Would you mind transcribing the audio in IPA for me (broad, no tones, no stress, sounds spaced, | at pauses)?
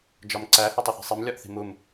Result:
d͡ʒ ɒ m ǀ æ h o tˤ u θ e̤ sˤ i m lʲ ɒ ʔ θ i̤ m u m